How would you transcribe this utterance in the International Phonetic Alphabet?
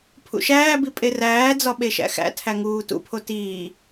pʰ ṵ ʃ æː b i pʼ e r æː d͡z ɒ ɓ e ʃ æ̰ x æ̰ tʰ æ ŋ uː t ṵ pʰ o t iː

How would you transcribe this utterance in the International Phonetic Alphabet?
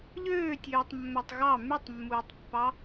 ʎ øː tʲ øː tˤ mː æ tˤ ɣ ɑ m y tˤ mː uː tˤ pː ɑ

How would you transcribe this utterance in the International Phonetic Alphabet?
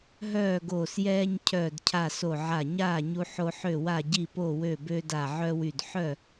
ɦ œː˥˨ ɡ oː˧˩ s j ɛː˦ ɲ cʰ œː˧˩ d cʰ a˧˩ s o˧˩ ʕ a˧˩ ɲ aː˥˨ ɲ u˦ ħ o˦ ħ ø˥˨ w a˥˨ ɟ i˥˨ p o˥˨ w ø˥˨ b øː˦ d a˧˩ ʕ œ˦ w y˧˩ d ħ œ˥˨

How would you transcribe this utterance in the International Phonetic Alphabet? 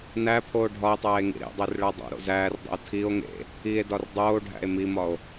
n æ pʰ oː ɖʱ ɒ e̯ tˤ æː e̯ ŋ ḭ ɾ ḛ dˤ e r ɭ æ dˤ o̰ ɾ o̰ z æː r dˤ ḛ o̯ tʰ i o̯ ŋ ḛ | i e̯ d ɒ r dˤ oː ɖʱ æ̰ e̯ m i m ɒ o̯

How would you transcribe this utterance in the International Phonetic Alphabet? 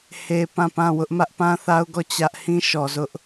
h e˦ p ã˦˨ p ã˦˨ w ʊ˦ ʔ m ä˦ ʔ p ã˦ θ a˦ ʊ̯ ɡ ɔ˦˨ t͡ɕ ä˦ ʔ h ĩ˦ ʃ ɔ˨ z ʊ˦ ʔ

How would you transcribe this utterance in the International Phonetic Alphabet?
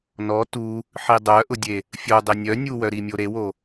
n ɔ t u | ħ i dˤ œ ʔ ʊ dʲ e | fʲ o dˤ e nʲ œ nʲ u w œ ɾ i mʲ o ɾ e w o

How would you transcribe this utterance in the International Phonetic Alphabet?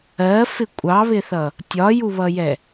ɜ f ɪ kʷʼ ɑ β ɪ θ ʌ | tʲ ɒ j u β ʌ j ɛ

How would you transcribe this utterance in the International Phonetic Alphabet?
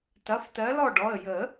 t ɐ˩˧˩ f t ɜ˨˦ l ɔ˥˨ ɖ ɔ˩˧˩ ə̯ j ə˨˩˦

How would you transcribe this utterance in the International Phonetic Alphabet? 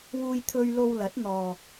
w uː˧ j t̪ʰ ɵ˧ ɥ l o˧ w l ɐ˨˥ t̚ n̪ ɔː˨

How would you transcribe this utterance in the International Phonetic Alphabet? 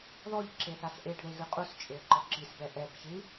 ð ɔ ʎ ǁ e θ a s ʔ e ɖ ð e ɣ ɨ qʼ u s t͡ʃʼ e ə̯ ǃ ɔ ǁ i s b ɛ ʔ ɛ b ç ɨ

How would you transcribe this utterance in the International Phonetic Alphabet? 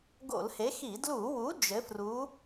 ɡ o̰˧˩˧ l h e˨˥ x i˧˩˧ d l u˧˩˧ w u˨˥ d͡ʒ ɘ˨˥ f r u˨˥

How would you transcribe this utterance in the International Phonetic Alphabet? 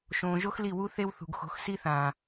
ʃ õː˨ ʒ o˦ x l i˦˨ w u˦ θ e˦ w θ ṳ˨ ɡ x o̤˨˦ x s i˦ θ ãː˨

